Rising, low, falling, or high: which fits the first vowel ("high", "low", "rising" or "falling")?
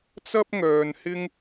high